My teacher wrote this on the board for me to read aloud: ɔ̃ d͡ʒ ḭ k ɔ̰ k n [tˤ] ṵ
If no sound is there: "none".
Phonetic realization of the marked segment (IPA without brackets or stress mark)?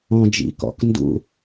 d